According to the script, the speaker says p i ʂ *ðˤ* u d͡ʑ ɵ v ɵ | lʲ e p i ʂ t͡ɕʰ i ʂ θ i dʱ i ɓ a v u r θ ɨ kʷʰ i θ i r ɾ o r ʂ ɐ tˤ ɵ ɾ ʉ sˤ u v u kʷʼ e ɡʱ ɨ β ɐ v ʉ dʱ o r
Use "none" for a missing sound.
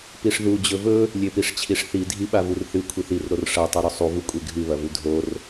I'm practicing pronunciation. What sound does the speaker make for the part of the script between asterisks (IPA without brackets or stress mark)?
ð